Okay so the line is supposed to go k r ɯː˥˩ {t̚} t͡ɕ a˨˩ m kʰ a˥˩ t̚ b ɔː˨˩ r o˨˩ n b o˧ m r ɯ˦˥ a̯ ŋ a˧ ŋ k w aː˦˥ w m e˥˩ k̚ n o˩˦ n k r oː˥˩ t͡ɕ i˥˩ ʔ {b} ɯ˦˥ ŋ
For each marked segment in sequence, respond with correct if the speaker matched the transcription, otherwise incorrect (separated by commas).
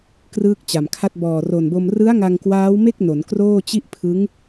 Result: incorrect, incorrect